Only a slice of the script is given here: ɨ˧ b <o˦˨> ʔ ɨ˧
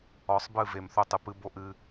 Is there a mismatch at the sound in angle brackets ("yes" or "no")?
yes